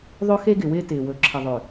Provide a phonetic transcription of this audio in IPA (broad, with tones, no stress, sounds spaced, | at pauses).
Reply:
ðˤ ɵ˦ x e˦ ɡ ɪ˨ w ɪː˦ t ɪː˨ w ɵ˨ ǁʰ ɪ˨ ðˤ ʏ˨